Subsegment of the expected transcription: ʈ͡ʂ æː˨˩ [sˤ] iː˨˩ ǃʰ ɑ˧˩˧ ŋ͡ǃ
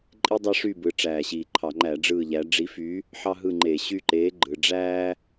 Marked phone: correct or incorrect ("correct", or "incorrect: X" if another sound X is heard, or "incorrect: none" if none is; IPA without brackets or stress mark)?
incorrect: ɕ